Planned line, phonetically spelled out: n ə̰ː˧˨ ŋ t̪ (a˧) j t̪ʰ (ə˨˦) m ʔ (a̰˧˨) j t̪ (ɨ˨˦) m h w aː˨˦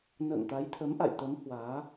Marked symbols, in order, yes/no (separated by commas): no, yes, yes, no